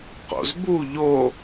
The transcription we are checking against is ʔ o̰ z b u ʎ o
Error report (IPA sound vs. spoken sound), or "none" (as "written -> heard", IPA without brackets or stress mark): ʔ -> q